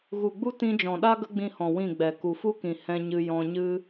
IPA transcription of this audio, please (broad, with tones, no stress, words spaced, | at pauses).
ɣu˨ɡ͡bu˦ tĩ˧d͡ʒɔ̃˨ɗa˦ ɡə˦ɡ͡bĩ˧hɔ̃˨ wĩ˦˨ɡ͡bɛ˨ ku˨fu˦kĩ˨ hɛ̃˧ɲɨ˧ jɔ̃˧ɲɨ˦